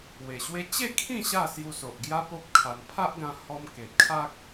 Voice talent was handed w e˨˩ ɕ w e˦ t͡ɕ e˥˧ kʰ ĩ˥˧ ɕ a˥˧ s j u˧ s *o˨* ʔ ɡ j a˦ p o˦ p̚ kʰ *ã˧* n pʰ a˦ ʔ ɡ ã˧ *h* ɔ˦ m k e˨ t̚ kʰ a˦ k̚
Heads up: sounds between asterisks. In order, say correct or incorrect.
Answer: correct, incorrect, correct

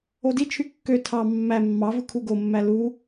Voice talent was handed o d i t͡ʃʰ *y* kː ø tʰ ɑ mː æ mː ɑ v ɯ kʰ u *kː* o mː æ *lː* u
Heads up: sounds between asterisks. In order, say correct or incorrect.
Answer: correct, incorrect, incorrect

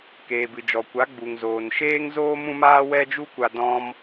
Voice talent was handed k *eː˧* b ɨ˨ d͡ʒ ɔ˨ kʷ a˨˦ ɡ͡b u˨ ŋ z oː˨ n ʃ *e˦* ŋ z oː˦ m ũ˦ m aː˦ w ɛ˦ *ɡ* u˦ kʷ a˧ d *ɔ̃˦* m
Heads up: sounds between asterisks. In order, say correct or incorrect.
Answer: incorrect, incorrect, incorrect, correct

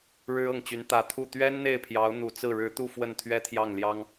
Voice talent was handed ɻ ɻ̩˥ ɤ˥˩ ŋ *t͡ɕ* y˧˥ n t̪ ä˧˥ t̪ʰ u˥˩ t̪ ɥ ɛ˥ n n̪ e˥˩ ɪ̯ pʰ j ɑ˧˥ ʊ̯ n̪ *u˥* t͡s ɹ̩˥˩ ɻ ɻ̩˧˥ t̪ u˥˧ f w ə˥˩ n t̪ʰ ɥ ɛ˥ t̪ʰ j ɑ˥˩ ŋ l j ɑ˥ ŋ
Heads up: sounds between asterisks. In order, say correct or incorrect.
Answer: correct, incorrect

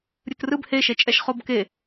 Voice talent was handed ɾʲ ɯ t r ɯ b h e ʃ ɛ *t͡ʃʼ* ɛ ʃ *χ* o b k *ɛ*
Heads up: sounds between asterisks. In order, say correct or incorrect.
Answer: correct, correct, incorrect

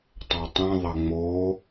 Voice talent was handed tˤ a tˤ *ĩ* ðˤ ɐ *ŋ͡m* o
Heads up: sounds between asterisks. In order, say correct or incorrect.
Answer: correct, correct

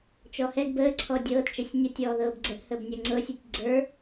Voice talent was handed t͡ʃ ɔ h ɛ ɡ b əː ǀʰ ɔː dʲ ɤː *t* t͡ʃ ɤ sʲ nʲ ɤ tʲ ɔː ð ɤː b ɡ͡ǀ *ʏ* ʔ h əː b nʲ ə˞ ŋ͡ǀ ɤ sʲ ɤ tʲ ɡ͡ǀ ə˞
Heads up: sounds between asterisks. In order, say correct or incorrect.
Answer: correct, incorrect

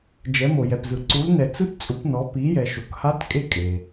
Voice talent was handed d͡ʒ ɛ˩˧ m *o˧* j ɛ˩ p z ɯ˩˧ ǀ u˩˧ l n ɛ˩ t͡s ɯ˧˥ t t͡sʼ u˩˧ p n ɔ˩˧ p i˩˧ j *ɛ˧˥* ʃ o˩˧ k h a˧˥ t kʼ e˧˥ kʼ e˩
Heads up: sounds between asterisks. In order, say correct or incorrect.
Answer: incorrect, incorrect

